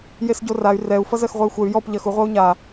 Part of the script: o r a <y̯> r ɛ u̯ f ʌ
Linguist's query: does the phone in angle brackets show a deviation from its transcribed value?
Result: no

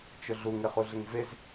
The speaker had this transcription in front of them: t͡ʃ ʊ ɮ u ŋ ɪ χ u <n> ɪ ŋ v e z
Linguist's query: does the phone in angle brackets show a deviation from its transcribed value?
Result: yes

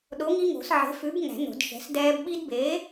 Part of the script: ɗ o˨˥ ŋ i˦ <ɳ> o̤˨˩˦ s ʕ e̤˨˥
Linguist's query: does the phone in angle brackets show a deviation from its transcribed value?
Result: yes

